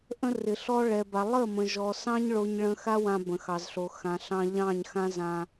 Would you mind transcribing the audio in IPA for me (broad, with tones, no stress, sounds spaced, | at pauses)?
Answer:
ʔ ə̃˦ r ɪ˨ ɬ ɔ˦ ɭ ɛ˨ b a˨ lˠ ə˦˨ m ə̃˨ ʒ ɔ˨ s ɑ̃˦ ɲ ɭ o˦ ɲ ɭ ə̃˦ x a˦ w ã˦ b ə̃˨ x ɑ˨ z ɬ o˨ x ã˨ ɬ ɑ̃˦ ʎ ɑ̃˦˨ ɲ x ã˦ z ã˦